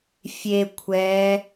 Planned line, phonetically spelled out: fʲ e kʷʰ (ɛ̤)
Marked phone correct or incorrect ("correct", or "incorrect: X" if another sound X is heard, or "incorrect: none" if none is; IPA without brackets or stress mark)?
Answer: incorrect: ɛ